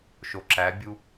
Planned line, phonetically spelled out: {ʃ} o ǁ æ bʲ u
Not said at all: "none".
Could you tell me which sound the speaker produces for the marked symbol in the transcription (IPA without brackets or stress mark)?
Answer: ʃ